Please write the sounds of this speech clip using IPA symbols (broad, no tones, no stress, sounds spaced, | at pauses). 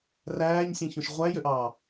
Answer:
r æː ɲ sʲ ẽ ç õ ʃ ʁʷ æ j ø ʔ ɑː